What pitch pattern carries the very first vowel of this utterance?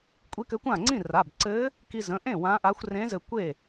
rising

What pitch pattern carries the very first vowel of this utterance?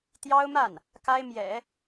high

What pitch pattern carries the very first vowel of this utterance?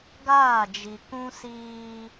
falling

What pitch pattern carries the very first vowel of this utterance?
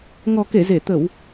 low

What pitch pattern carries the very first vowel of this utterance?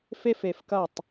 high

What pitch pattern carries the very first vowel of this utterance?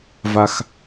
high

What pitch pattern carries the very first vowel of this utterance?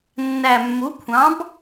low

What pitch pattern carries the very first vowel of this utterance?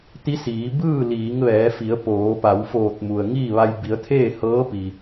rising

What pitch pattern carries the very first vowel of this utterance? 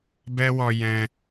high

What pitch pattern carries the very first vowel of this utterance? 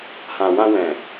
low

